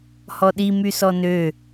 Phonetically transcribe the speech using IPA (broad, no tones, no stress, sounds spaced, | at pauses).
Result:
h ɔ ɗ i m y s ɔ n ø